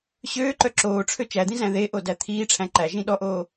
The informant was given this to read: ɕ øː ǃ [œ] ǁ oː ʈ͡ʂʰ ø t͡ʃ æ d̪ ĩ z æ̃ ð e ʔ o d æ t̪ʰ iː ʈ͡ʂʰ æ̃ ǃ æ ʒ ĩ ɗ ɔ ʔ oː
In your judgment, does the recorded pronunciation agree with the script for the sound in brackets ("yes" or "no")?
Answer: yes